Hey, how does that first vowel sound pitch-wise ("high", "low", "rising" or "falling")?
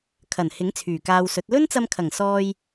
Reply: low